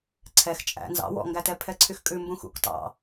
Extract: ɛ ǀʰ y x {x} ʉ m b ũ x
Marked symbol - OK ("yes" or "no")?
no